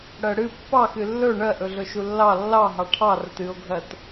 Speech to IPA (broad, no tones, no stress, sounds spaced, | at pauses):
ɽ ɜ ɽ ɨ pː ɑ x ɨ lː ɵ ɳ ɜ ʔ ɵ ɮ ɵ ʃ u lː ɑ lː ɑ ɦ ɑ ʈʰ ɑ r ə t ɨ o̯ ɡʱ ɜ t